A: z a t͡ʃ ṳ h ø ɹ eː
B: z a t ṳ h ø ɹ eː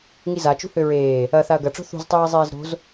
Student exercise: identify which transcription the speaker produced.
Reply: A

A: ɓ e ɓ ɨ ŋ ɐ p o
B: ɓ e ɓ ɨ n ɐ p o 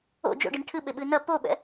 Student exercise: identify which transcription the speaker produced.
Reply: B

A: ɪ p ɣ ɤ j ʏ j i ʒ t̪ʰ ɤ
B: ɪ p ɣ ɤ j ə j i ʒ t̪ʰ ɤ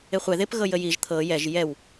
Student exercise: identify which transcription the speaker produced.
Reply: B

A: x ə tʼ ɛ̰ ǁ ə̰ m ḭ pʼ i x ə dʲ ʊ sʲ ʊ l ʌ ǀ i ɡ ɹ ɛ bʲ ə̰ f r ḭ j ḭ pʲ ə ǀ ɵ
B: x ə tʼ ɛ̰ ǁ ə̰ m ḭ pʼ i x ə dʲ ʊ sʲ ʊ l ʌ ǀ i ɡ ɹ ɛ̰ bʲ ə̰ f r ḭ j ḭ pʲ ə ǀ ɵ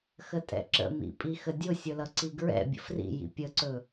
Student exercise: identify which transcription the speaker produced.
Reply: B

